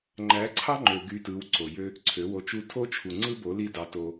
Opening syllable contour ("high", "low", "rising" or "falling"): rising